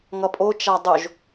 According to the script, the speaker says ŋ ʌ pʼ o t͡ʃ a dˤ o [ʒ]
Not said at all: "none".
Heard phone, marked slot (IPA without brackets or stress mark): ʒ